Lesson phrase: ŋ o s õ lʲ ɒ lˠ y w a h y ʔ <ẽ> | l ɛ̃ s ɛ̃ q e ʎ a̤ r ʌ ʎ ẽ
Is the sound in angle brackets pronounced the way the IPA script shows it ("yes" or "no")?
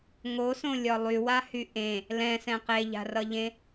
yes